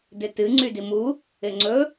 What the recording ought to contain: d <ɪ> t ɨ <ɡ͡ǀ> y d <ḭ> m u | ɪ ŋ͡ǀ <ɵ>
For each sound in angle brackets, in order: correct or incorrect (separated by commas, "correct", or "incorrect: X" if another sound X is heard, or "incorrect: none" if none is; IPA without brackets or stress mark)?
correct, incorrect: ŋ͡ǀ, incorrect: i, correct